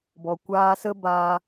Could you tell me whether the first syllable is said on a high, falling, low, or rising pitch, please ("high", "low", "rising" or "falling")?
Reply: low